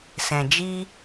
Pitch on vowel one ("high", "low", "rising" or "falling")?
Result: low